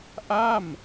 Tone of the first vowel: falling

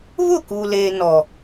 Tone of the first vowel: falling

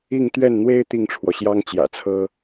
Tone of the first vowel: falling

